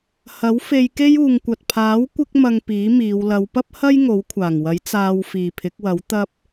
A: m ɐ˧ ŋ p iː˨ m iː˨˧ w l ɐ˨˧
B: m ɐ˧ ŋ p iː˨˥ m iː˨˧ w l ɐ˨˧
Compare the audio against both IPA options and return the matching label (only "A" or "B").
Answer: B